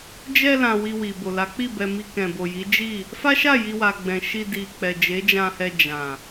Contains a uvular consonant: no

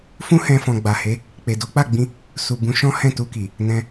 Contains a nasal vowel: yes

